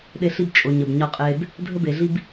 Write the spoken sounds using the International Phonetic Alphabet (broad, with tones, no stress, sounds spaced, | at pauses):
ɗ e˧ ɬ i˧ b t͡ʃʼ o˨ ɲ ə˨ b ɲ ɒ˧ qʼ e˧ b | dʱ ə˧ b e˨ ɮ i˧ b